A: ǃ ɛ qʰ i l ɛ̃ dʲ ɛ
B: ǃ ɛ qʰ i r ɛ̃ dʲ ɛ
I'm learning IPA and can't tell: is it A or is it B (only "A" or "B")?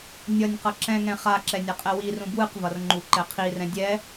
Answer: B